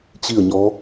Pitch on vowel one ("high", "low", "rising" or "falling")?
falling